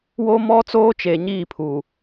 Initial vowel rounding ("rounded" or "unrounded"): rounded